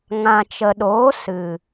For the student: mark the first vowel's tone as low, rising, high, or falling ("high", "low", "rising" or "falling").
low